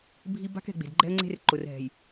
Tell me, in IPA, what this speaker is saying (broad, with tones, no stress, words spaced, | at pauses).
bʱi˦ ba̤˦kɛ̤˨ ɡ͡be̤˨dɡ͡ǃɛ̤˦ə̯ŋ͡ǀe̤˦r ǃʊ˨rɦɛ̤˨j